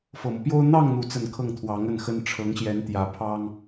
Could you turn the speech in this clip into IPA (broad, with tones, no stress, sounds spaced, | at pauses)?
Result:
f ɤ˨˩ m ɤ˦ p j o˥ ʊ̯ n̪ ɑ˥˧ ŋ n̪ u˥˧ t͡s ə˥˧ n kʰ ɤ˥˩ ŋ t̪ʰ w ɑ˧˥ ŋ ə˥˩ n x ə˥ n ʈ͡ʂʰ ɤ˧˥ ŋ ɕ j ɛ˧˥ n t̪ j ä˧˥ pʰ ɑ˥ ŋ